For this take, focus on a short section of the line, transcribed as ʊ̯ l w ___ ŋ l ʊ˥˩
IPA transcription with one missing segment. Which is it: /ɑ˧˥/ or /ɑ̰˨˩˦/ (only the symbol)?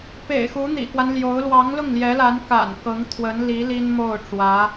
ɑ˧˥